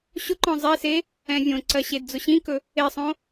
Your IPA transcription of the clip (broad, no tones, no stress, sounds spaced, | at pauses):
ɕ ʊ ǃ ɔ̃ zˤ e s e | ɛ̃ vʲ õ ǀ ɜ ɕ e d d͡z ʊ ɕ ĩ k ɵ | e sˤ õ